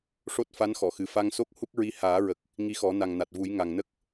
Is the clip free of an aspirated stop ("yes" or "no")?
yes